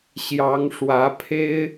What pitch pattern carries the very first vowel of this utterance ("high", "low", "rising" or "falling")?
rising